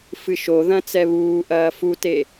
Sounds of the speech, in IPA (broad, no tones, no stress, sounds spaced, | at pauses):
f ɨ ʃ o ð ɐ̃ t͡s ɛ β uː ʔ ɐː f u t e